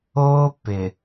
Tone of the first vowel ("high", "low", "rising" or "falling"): high